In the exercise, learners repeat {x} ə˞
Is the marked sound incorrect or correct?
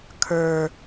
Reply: incorrect